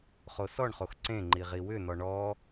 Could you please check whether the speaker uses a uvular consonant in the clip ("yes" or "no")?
yes